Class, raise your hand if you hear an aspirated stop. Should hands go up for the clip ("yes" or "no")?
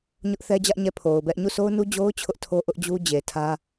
yes